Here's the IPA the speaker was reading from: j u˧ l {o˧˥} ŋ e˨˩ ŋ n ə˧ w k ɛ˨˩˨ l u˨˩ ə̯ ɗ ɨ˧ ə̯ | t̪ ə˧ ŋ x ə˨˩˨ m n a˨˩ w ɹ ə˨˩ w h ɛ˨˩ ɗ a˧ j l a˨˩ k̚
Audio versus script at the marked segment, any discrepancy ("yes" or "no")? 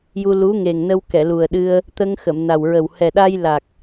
yes